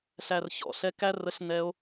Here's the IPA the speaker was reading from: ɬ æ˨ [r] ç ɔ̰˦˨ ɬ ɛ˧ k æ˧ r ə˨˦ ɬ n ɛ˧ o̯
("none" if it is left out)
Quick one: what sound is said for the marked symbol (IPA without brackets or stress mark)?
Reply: r